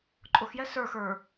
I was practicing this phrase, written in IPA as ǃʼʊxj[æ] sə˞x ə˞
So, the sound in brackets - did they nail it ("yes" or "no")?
no